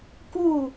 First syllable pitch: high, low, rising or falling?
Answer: falling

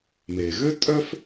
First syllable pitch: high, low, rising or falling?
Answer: low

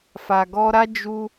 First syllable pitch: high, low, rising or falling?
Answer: low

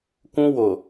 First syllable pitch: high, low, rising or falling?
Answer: high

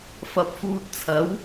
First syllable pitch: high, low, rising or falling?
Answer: rising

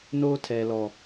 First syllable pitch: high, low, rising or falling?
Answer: high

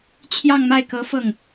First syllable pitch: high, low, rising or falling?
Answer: falling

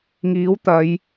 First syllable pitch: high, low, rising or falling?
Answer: rising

